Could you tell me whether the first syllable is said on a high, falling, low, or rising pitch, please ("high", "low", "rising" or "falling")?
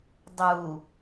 low